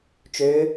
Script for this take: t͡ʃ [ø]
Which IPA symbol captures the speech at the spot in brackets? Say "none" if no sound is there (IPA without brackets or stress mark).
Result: ø